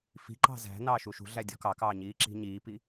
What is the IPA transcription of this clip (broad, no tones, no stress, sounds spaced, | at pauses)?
f i̤ ǃ ɑ̤ z æ̤ n ɑː ʃ u ʃ ṳ ɮ æ dʲ ɔ̤ k ɑ k ɑː ɲ iː ǁ i̤ ɲ iː p i